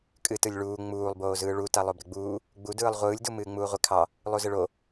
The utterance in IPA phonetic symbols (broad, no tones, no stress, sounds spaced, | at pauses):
kʼ ɨ t ɯ lʲ ɭ uː ŋ͡m uː lˠ b oː z ɯː ɭ u t a lˠ o b ɾ ɪ ɡ͡b uː | ɡ͡b u d ɯː lˠ ʁʷ ɯː lʲ d u m ɨː ŋ͡m uː ʁʷ ɪ kʰ ɑ | lˠ u z ɪ ɭ o